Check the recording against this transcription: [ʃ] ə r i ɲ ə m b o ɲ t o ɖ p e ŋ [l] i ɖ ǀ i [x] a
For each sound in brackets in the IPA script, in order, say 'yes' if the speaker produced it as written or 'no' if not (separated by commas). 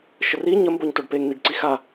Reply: yes, no, yes